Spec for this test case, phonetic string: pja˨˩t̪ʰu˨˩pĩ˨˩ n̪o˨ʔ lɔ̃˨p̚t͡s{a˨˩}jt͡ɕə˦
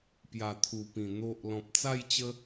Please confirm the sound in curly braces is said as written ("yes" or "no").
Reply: no